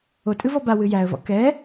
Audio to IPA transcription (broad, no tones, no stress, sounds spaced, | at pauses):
o tʼ ɨ v ɔ b a w ɨ j æ ə̯ v ɔ̰ k ɛ